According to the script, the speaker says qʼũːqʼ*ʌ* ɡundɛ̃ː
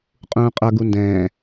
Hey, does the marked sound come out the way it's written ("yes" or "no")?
yes